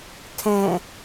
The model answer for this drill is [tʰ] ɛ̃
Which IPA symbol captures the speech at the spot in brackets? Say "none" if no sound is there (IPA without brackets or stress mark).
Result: tʰ